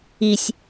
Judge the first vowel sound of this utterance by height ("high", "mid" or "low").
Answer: high